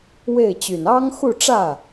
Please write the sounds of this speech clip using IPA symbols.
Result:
w e˥˩ ɪ̯ t͡ɕ y˨˩ n ɑ˥ ŋ x u˥˧ ʈ͡ʂ ä˥˩

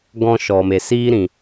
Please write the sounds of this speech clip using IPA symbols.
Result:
ɡ ɔ̃˧ ʃ ɔ˨ m e˨ s iː˧ ɾ ĩ˨

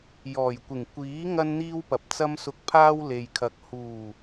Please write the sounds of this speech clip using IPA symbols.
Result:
j ɔː˨˩ j kʷ ɪ˨˩ ŋ kʷ iː˨˥ ŋ ɐ˥ n n̪ iː˥ w p ɐ˨ p̚ t͡s ɐ˥ m s ʊ˧ k̚ pʰ aː˥ w l e˨ j kʰ ɐ˨ k̚ h uː˨˩

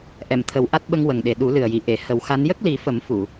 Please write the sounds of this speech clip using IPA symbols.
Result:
ʔ ɛ˨˩˨ m t̪ʰ ə˨˩˦ w ʔ a˦˥ t̚ ɓ ə˧ ŋ w ə˨˩ ŋ ɗ e˨˩ ɗ u˨˩˦ l ɨ˨˩ ə̯ j i˨˩˨ ʔ e˨˩˨ h ə˨˩˦ w x a˧˥ n j ə˦˥ k̚ l i˨˩˦ f ə˨˩˦ m f u˨˩˨

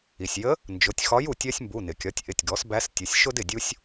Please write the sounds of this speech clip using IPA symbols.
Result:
i˩ sʲ j ə˧˥ | n d͡ʒ ʊ˩˧˩ tʲ x ɒ˧˥ j u˩ tʲ ɜ˥ sʲ m b u˩˧˩ n ɪ˩ kʲ ɒ˩˥ tʲ ʔ ɪ˩˧˩ tʲ ɡ ɔ˩˥ s b æ˧˥ s tʲ ʊ˩˧˩ sʲ ʃ ʊ˥ d ɪ˩ dʲ u˥ sʲ

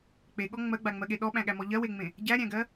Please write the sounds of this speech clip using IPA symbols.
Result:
k͡p e ɠ ɔ ŋ͡m ɜ ɡ͡b a ŋ͡m ɜ ɠ e ɗ ɔ ɓ æ̃ ɠ æ m ɔ ʎ ɜ w e ŋ͡m ẽ | ɟ æ ɾʲ æ̃ ɡ ɜ

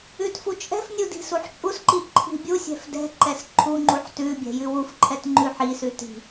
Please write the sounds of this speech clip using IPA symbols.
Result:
ʉ t f u t͡ʃʼ ɛ̤ f nʲ u d i̤ s u ħ t͡ʃʼ u s ǃ i ǃʰ i̤ bʲ u sʲ ɛ̤ f d ɛ̤ ǃ ɛ s ǃʰ u ŋ͡ǃ u ħ t ʉ bʲ ɛ̤ j ʉ w u f ǃʰ ɛ t ŋ͡ǃ ʉ ħ i s ʉ t i̤

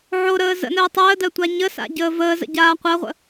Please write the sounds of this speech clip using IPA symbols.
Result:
ʕ o ɾ əː z ə̰ n əː tˤ əː d ɜ tʷ a ɲ ə s a̰ ɟ əː v əː z ə̰ ɟ aː qʷ ɜ ʁʷ ə̰

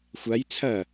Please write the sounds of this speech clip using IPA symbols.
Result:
xʷ a j t͡sʰ ɐ

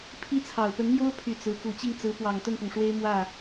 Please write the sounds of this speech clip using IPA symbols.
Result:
pʰ i˥˩ t͡sʰ ɑ˨˩ ʊ̯ p ə˧˥ n m j o˥ ʊ̯ pʰ y˨˩ t͡s ɹ̩˧˥ k u˨˩ t͡ɕ i˥˩ ŋ t͡s ɹ̩˧˥ p w ɑ˨˩ ŋ t̪ ə˥˩ n p ʊ˩ ŋ ʂ w e˥ ɪ̯ m w ä˥˩

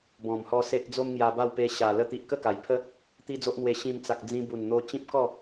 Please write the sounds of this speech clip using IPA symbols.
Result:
b ɔ̃˨˩ m h ɔ˧ s e˦ ʔ d͡z o˦ m ŋ j a˧ b a˥˧ w p e˧ ɕ a˨˩ l ə˧ t̪ i˨ ʔ k ə˥˧ k a˨˩ j pʰ ə˦ | t̪ i˦ d͡z o˦ ʔ n̪ w e˧ ɕ ĩ˧ m t͡s a˨ k̚ d͡z ĩ˧ b u˨˩ n n̪ o˧ t͡ɕ ĩ˦ p̚ k ɔ˥˧

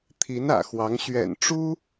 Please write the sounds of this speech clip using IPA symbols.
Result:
t̪ʰ i˧˥ n ä̰˨˩ x w ɑ˧˥ ŋ ɕ ɥ ɛ̰˨˩ n ʈ͡ʂ u˥

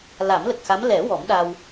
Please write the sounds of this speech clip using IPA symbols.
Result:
l a˨˩˦ m l ə˨˩ k̚ x a˧˥ m l ɛ˨˩˦ w ɔ˨˩˦ m ɗ a˧ w

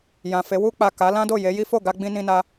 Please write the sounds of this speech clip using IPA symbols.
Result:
j ã˨ f e˨˦ w u˧ k͡p a˨ k a˨˦ l ã˦ d o˦˨ j e˨˦ j i˦ f o˦˨ ɡ a˧ ɡ͡b ĩ˧ n ĩ˧ n a˧

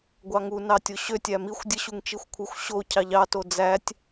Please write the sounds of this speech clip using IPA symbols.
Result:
ɡʷ ɑ ŋ u n ɑ tʲ o ɕ ø tʲ æ m i xʷ dʲ ɯ ɕ u ŋ t͡ʃ i xʷ kʷʰ ɯ xʷ ɕ o cʰ ɑ ʎ ɑ t o d͡z æ tʲ

